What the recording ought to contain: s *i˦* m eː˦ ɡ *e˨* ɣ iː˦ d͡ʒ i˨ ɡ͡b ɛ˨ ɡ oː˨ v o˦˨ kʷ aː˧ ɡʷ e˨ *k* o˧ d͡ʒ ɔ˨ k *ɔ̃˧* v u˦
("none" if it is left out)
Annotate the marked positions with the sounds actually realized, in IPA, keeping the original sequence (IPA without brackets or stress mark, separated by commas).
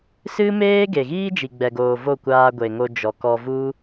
ɨ˦, e˨, ŋ, ɔ˧